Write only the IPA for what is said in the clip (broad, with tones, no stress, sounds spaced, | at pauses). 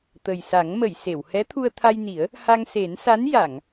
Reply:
t̪ ə˨˩ j s a˨˩˦ ŋ m ə˨˩˨ j s e˨˩˨ w h ɛ˧˥ t̪ʰ u˧ ə̯ t̪ʰ a˧ j n i˨˩˦ ə̯ | h a˧ ŋ s e˨˩˦ n s a˧˥ n j a˨˩˨ ŋ